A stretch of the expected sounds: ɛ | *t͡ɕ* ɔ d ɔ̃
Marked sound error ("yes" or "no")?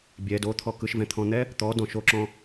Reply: yes